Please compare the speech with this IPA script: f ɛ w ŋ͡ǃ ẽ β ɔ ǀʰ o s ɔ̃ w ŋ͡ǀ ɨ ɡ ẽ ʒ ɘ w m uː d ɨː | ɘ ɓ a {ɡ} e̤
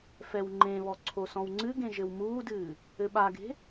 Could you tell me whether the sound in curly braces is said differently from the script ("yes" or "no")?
no